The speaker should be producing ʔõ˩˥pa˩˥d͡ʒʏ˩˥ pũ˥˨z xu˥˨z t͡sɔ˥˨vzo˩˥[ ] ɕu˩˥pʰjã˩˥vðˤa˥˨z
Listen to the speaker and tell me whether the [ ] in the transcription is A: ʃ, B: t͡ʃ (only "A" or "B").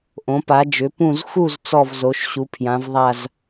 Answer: A